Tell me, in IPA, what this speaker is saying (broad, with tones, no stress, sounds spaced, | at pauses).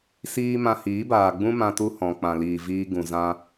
s iː˧ m ã˧ h iː˨˦ b aː˨ ɡ͡b ũ˦ m ã˧ t u˧ h ɔ̃˨ k͡p ã˨ l iː˨ v iː˧ ɡ ũ˨ z ã˧